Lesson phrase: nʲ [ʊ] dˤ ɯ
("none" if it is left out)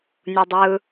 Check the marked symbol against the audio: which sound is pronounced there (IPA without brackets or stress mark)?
u